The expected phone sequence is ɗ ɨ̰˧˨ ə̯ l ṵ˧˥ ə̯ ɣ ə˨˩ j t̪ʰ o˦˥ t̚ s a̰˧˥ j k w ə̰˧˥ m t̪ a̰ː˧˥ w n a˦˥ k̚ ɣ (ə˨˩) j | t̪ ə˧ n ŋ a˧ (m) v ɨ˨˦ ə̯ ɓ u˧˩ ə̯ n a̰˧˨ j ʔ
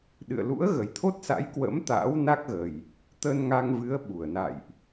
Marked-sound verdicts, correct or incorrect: correct, incorrect: ŋ

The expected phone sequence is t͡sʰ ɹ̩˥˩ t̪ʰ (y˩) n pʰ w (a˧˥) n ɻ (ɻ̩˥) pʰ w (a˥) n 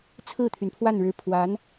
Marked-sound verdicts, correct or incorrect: correct, incorrect: a˥˩, incorrect: ɻ̩˧˥, incorrect: a˧˥

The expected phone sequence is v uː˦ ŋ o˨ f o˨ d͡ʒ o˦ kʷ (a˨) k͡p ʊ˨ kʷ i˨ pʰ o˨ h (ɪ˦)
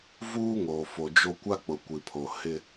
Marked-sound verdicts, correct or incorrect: incorrect: a˦, correct

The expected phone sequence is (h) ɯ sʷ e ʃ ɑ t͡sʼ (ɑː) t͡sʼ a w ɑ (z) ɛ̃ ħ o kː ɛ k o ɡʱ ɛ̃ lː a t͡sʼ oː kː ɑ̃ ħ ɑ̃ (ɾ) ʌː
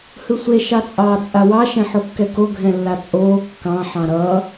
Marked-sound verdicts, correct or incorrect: correct, correct, incorrect: ʃ, correct

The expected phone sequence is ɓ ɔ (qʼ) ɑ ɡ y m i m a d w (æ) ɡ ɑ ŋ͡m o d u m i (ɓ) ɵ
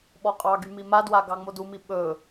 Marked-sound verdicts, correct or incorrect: correct, incorrect: a, correct

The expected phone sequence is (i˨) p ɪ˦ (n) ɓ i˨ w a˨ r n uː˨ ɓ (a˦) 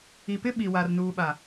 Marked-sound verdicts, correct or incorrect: correct, incorrect: none, incorrect: a˨

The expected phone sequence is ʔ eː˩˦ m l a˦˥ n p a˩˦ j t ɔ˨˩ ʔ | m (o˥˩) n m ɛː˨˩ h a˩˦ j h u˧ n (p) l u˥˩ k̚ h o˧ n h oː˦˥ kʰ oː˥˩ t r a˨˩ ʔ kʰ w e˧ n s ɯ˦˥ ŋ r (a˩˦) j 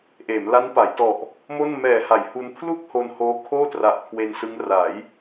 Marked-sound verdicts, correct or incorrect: correct, incorrect: pʰ, correct

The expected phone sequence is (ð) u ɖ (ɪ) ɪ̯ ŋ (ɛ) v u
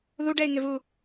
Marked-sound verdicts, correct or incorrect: correct, incorrect: ɛ, incorrect: ɪ

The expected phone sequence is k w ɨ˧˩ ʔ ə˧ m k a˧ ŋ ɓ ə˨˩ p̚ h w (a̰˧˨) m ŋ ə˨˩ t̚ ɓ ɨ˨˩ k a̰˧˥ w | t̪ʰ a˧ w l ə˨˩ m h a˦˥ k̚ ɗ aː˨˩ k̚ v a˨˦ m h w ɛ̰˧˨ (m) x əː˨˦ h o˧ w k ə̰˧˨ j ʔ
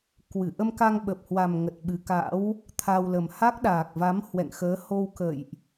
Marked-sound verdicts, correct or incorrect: incorrect: a˨˩, incorrect: ŋ

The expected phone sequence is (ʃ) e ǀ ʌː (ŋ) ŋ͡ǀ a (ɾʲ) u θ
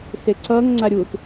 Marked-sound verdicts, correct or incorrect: incorrect: s, correct, correct

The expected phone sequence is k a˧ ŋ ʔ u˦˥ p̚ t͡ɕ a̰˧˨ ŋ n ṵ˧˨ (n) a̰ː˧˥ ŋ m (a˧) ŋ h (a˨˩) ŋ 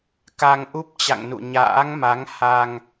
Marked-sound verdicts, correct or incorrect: incorrect: ɲ, incorrect: a˨˦, incorrect: a˧

